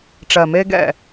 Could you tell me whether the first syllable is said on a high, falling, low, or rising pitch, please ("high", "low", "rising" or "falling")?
low